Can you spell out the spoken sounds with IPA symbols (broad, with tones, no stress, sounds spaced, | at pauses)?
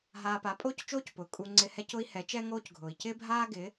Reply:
ɦ aː˧ p a˨˦ pʼ oː˦ c t͡ʃ oː˦ c p ʊː˨ kʼ u˧ ŋ͡ǀ ɪ˧ h ɛ˦ c ʊ˦ i̯ h ɛ˨˦ t͡ʃ ɛ˦ ŋ oː˦ c ɡʱ ʊː˨ i̯ c ɪː˦ bʱ aː˦ ɡ ɪː˨˦